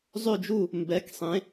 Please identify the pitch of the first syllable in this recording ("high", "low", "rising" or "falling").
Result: falling